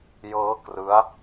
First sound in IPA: j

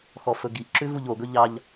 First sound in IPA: x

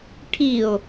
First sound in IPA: ʈʰ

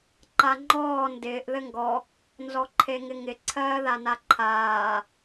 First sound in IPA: ǃ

